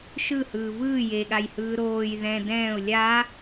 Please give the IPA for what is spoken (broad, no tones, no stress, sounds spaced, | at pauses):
ʃ ɯ h ɯː v ɯː j e ɠ a j h ɯː ɾ oː j ð ɛ̃ d ɛ̃ː ʊ̯ lʲ a